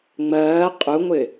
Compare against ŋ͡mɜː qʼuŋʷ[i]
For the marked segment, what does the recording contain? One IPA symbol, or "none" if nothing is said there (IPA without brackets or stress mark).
ɪ